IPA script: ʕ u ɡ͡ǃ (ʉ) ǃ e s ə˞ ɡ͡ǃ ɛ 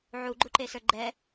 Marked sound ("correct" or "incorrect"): incorrect